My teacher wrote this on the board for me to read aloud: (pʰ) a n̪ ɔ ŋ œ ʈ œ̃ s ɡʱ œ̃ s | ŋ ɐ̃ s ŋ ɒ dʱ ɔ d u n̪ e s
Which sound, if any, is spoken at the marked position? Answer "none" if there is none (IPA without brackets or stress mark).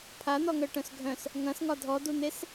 pʰ